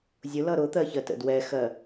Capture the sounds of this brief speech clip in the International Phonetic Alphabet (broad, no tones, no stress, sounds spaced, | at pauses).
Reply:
zʲ ʊ l ʌ ɾ ʊ t̪ ɜ ç ɜ t ə̰ d w ɛ x ɜ